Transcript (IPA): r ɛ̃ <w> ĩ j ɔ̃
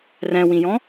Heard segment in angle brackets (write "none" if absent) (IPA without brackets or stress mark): w